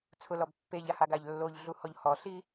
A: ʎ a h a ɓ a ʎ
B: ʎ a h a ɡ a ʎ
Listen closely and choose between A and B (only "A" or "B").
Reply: B